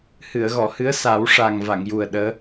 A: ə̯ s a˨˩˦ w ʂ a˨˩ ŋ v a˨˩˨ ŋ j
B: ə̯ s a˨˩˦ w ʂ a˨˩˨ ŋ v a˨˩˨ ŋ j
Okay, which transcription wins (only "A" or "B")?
A